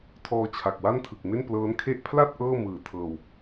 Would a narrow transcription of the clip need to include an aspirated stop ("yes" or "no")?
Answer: yes